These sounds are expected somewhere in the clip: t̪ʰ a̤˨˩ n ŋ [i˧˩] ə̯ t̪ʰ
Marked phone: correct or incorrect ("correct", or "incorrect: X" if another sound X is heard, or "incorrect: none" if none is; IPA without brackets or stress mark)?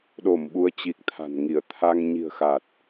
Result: correct